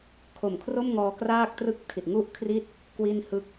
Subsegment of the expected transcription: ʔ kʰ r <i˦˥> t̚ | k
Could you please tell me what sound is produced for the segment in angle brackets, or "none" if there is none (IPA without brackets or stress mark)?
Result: i˥˩